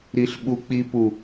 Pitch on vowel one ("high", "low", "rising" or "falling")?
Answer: high